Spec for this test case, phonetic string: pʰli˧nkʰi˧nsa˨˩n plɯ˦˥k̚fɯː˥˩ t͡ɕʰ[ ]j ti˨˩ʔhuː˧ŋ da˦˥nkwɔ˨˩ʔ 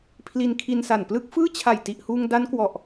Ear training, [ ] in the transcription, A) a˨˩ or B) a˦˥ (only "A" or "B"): A